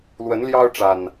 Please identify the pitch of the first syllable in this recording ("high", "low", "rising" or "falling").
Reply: rising